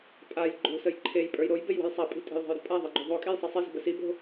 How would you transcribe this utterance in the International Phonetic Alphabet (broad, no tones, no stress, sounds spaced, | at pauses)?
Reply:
pʼ a j ɡ͡ǃ o̤ s ə j ǃʰ e j pʼ ə˞ j ɾ o j b e j w ə̤ j sˤ a pʼ i̤ tʼ e̤ j ðˤ a̤ j ɾ ə̤ pʼ a ðˤ e ɡ͡ǃ o ðˤ o kʼ e j sˤ i sˤ i z ə̤ b ə s i b o̤